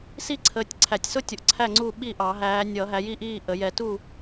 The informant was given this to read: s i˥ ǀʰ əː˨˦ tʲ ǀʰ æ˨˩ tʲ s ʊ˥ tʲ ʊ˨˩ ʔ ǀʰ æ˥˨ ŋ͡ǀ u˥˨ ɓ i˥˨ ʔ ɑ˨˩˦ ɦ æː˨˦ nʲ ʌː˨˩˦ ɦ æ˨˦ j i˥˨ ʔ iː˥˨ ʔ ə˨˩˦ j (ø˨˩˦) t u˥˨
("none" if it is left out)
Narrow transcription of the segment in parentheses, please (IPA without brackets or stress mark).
ɛ˨˩˦